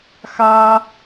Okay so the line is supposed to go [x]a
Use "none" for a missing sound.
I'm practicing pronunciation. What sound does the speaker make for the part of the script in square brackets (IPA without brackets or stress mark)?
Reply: x